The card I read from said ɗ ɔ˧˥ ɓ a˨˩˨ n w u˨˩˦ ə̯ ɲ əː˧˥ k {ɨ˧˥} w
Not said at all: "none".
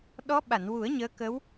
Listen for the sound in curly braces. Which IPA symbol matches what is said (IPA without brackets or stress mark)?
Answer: ə˧˥